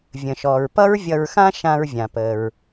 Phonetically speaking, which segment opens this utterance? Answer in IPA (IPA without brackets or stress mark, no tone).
vʲ